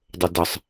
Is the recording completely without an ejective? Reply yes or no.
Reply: yes